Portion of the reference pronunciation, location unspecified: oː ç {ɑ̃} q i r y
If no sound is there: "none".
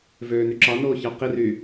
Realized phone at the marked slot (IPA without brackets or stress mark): ɑ